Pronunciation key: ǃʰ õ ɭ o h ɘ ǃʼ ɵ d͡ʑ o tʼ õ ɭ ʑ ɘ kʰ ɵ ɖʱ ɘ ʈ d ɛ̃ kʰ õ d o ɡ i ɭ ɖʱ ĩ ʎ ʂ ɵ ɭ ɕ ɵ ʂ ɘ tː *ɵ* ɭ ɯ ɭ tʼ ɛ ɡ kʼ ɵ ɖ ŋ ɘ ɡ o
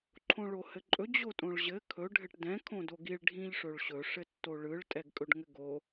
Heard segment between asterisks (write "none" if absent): o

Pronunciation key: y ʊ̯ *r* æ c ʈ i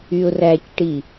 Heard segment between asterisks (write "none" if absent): r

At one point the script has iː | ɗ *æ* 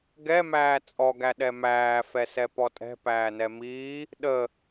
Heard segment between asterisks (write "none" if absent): ə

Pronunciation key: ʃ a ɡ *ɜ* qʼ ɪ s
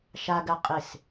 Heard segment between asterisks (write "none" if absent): ɜ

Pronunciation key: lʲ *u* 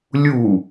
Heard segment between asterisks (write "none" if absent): u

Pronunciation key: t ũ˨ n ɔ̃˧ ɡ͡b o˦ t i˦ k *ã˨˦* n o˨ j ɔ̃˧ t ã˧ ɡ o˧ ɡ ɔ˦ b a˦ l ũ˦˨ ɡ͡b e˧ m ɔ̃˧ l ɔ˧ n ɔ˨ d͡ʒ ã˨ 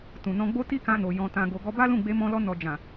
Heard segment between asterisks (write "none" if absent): ã˧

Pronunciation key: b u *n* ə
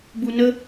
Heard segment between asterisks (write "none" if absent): n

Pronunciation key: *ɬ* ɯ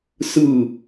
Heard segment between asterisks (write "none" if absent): s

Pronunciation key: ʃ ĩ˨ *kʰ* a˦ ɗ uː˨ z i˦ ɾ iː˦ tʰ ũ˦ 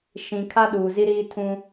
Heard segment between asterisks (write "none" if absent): kʰ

